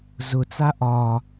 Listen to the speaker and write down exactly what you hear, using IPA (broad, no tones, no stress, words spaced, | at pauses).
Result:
zʊt͡sa ʔɒ